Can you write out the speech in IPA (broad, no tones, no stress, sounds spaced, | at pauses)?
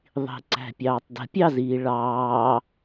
ðˤ i̤ ǀ æ̤ pʲ ɑː tˤ d ə̤ pʲ ɑ z iː ɭ ɑː